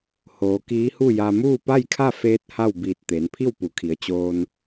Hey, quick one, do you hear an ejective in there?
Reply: no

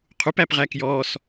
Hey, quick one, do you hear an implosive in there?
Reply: no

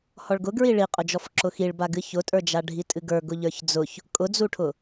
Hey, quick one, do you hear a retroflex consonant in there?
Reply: yes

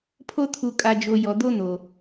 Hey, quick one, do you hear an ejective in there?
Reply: yes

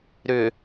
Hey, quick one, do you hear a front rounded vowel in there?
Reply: yes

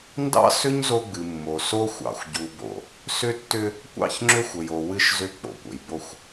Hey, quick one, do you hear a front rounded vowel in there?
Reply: yes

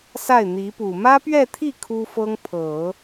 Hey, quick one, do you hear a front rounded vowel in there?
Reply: no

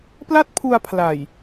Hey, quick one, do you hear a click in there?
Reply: no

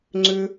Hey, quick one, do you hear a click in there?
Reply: yes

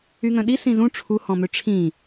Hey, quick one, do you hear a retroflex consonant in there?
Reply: yes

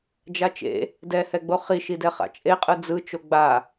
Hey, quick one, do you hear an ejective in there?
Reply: yes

